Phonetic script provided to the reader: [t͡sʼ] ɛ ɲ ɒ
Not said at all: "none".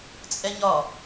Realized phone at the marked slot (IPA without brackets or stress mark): t͡sʼ